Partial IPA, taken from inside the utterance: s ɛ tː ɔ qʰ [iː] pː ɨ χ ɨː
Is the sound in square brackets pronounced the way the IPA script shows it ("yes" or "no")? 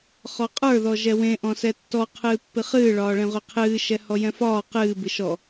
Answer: no